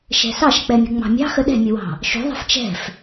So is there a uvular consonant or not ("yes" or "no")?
no